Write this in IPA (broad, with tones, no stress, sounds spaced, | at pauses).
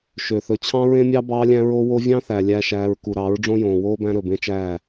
ʃ ø˨ θ ɵ˨ t͡ɕʰ ɑ̃˦ ɹ ẽ˦ mʲ ɑ˦ b ɑː˦ lʲ æ̃˦ ɹ o˦ w o˦ vʲ ɑ̃˦ θ æ˨ lʲ æ˦ ʃ æː˦ ɹ k u˨ ɾ ɑ˨˦ ɹ ɖ͡ʐ õ˦ j õː˨ w oː˦ b æ̃˦ ɾ ɵ˨ b ẽ˦ t͡ʃ æː˦˨